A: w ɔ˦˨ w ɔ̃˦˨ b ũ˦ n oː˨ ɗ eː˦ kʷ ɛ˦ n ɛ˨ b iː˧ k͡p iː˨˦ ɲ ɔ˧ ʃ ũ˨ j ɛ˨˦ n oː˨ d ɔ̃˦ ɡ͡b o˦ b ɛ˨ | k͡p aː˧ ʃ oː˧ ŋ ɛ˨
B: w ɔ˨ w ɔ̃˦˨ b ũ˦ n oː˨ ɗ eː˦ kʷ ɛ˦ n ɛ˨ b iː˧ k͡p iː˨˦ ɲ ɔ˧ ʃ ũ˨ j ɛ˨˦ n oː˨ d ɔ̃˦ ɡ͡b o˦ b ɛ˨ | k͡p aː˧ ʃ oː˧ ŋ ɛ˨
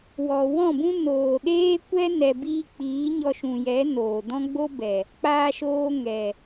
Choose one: B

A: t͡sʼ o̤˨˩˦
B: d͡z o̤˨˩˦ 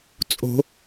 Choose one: A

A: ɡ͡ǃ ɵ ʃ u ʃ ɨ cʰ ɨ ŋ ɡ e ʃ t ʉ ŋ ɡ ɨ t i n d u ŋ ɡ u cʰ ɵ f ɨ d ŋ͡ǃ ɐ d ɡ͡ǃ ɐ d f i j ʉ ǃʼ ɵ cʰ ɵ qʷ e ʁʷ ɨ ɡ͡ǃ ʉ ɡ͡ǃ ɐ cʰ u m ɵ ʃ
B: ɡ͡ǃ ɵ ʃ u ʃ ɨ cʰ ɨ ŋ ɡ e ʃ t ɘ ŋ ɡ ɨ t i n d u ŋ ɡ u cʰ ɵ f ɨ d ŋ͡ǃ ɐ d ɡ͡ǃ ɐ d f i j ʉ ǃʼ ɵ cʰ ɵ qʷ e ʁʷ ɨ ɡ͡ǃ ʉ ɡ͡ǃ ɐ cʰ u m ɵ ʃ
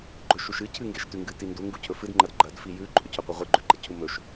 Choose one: A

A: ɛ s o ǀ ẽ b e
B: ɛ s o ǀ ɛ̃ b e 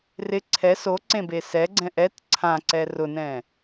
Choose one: A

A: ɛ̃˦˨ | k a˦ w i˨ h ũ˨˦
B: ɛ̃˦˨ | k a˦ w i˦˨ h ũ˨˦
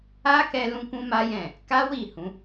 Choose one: B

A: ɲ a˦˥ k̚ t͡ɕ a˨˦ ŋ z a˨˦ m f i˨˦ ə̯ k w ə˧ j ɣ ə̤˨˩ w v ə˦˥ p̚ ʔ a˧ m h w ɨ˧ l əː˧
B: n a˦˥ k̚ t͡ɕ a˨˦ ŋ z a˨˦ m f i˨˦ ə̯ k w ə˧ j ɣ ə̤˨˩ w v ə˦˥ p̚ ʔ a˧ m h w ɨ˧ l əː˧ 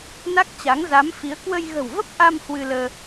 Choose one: B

